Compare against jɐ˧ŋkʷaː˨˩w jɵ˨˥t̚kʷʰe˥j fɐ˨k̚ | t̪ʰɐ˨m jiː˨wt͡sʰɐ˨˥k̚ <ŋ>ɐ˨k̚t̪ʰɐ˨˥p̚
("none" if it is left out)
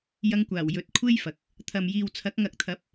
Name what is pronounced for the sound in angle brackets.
ŋ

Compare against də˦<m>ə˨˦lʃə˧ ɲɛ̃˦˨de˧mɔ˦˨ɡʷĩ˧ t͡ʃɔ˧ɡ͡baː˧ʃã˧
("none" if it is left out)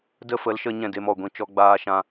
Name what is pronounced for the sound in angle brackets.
f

